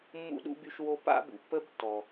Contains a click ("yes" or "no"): no